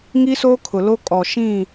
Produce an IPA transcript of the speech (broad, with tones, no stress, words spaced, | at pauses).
ŋi˦soː˦kʰʊ˨lo˦ kʼɔ˨ʃĩ˦˨